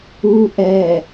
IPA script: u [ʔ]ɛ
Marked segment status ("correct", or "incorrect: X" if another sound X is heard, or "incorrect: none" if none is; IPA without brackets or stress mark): correct